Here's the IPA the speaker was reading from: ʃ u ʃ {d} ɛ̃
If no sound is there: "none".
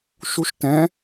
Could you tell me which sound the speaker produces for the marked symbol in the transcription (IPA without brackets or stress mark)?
t